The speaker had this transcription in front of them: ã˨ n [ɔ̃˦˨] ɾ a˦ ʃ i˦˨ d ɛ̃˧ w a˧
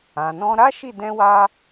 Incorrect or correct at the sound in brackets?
incorrect: ɔ̃˧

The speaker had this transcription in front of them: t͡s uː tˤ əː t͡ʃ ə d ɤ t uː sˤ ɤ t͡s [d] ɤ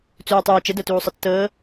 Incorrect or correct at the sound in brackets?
incorrect: t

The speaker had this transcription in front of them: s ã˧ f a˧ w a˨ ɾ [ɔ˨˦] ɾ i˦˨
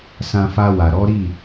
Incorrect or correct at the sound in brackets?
correct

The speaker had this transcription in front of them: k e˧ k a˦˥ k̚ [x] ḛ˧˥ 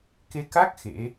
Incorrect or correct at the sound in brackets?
correct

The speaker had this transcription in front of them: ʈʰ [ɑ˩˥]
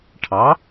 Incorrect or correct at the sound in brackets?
correct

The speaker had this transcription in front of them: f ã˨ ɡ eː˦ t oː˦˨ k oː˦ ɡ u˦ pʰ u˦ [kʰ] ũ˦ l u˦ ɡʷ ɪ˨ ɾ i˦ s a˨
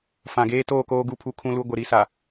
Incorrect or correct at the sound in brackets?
correct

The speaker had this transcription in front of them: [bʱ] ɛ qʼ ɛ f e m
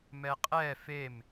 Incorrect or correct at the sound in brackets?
incorrect: m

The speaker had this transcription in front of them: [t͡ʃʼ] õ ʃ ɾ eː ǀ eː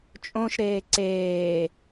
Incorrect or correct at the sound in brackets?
correct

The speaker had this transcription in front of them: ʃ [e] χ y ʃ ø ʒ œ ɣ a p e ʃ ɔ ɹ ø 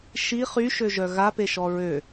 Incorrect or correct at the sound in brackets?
incorrect: i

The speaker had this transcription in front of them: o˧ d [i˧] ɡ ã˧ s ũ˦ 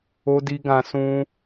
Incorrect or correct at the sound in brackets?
correct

